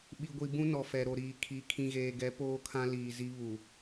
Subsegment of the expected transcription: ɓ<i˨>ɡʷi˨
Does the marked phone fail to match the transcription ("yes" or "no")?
no